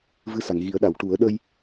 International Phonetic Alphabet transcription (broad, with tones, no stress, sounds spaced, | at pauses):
v ɨ˧ s a˨˩˨ ŋ ɣ i˨˩˦ ə̯ ɗ a˨˩˨ w ʈ u˨˩˦ ə̯ ɗ ə˧ j